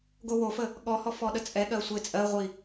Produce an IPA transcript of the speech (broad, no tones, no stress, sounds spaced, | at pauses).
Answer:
ɡ o w o f ə | ɠ ɔ h ɔ f ɔ ɗ ə t͡sʼ ɛ ɠ ɜ sʷ e t͡sʼ ɜ ʁʷ i